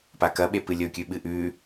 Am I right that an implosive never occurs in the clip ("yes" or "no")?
no